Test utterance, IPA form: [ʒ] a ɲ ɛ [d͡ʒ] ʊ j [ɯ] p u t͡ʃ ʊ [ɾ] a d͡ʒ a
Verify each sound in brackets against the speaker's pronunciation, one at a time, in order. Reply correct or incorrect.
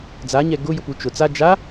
incorrect: d͡z, incorrect: ɡ, incorrect: ʊ, incorrect: t͡s

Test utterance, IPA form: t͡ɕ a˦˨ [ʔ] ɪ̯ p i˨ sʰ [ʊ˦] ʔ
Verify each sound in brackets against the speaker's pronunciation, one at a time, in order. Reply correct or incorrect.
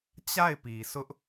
incorrect: none, correct

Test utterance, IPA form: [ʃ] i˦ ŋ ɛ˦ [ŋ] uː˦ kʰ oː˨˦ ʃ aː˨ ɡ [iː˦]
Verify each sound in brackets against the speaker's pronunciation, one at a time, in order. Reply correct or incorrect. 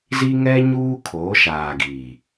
incorrect: z, incorrect: ɲ, incorrect: iː˨

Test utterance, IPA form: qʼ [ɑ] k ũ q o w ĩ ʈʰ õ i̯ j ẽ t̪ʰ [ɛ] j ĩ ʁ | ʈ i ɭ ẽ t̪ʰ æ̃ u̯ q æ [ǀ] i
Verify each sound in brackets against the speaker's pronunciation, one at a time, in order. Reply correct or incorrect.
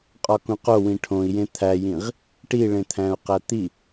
incorrect: ɒ, incorrect: æ, incorrect: t̪

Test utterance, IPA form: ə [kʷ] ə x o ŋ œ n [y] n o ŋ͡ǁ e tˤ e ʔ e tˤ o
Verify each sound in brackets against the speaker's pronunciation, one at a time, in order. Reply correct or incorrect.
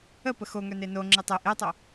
incorrect: p, incorrect: e

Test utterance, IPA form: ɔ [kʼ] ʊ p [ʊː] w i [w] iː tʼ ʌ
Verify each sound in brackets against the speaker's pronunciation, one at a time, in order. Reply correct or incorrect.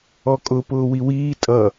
correct, correct, correct

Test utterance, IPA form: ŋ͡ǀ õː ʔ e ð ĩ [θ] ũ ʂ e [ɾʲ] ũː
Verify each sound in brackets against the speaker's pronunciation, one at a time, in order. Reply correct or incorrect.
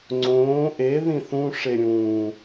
correct, correct

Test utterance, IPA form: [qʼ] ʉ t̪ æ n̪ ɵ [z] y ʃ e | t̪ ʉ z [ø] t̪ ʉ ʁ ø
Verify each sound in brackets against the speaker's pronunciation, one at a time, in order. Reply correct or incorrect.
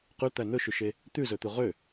incorrect: q, incorrect: ʃ, incorrect: ɵ

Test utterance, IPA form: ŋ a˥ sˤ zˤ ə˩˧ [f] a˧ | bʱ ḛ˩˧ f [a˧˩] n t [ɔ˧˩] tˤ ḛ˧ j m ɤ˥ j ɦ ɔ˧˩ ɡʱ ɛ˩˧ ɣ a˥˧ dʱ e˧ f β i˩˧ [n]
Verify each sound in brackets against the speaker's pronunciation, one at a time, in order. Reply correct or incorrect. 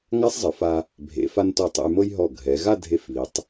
correct, incorrect: a˧, correct, incorrect: tˤ

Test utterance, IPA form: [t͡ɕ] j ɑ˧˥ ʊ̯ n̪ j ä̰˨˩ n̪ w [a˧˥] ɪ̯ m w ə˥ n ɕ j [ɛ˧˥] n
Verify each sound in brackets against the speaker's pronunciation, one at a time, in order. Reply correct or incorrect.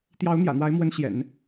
incorrect: t̪, correct, incorrect: ɛ̰˨˩˦

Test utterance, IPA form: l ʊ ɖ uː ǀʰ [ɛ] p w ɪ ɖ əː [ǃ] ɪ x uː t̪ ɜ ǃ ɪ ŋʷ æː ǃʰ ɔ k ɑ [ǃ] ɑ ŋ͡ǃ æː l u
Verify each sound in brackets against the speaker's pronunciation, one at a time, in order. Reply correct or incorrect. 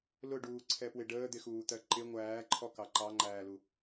correct, incorrect: d̪, correct

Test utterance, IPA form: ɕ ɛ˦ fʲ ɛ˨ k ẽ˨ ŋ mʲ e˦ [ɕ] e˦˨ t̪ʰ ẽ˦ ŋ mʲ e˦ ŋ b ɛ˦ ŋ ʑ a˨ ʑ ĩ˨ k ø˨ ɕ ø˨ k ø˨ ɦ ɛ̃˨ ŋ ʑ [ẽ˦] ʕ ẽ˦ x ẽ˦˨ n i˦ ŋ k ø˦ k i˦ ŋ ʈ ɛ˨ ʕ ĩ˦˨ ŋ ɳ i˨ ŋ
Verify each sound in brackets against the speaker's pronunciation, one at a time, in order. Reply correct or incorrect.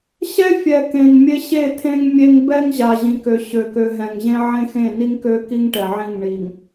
correct, correct

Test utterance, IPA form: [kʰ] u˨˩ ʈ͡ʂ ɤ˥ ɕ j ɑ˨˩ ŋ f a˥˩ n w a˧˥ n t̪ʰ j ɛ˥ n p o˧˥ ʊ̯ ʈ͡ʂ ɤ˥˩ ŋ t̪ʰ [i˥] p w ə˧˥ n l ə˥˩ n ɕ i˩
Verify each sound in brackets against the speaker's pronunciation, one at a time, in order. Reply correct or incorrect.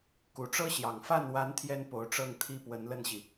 incorrect: k, correct

